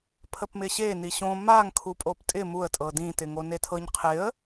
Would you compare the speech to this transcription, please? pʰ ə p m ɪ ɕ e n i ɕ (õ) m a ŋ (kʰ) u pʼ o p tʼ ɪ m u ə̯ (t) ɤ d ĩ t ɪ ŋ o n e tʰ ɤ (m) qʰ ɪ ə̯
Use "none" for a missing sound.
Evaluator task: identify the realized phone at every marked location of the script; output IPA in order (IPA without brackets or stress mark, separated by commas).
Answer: õ, kʰ, tʼ, ɲ